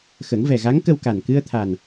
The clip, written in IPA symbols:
xə˨˩˦ŋvɛ˨˩ɣa˧˥ŋkə˧w ka˨˩n kɨ˧ə̯t̪ʰa˨˩n

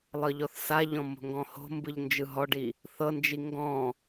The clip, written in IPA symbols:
lˠɤʎɔθsaʎɔ̃ mo̤ŋɡɔ̃ho̤mbɯʎ nd͡ʒɯɦɔɖi | θɤnd͡ʒi ŋɡɔ̃

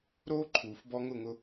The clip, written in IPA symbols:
ɾoː˥ǃʰuː˩f bɔ˧ ŋʊ˥˩ŋʊ˧

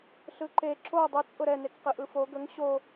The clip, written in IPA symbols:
ɬɯǃe ǁo dˤɯt͡sʼʊ ɾɛnekqɯʔɯ fo ɡəŋ ɕo

